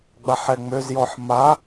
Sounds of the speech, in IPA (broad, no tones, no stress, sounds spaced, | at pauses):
ɡ͡b a ħ ɛ ŋ͡m ø z j ɔ ħ m a